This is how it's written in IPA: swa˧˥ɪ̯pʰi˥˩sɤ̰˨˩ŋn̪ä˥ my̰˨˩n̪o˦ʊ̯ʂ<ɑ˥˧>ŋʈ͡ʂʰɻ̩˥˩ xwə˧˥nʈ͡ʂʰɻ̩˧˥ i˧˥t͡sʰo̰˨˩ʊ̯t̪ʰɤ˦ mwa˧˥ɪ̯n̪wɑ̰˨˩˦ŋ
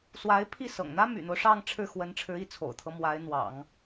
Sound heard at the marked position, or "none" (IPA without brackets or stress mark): ɑ˥˧